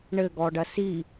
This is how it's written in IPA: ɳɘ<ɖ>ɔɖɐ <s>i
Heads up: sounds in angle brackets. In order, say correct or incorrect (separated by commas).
incorrect, correct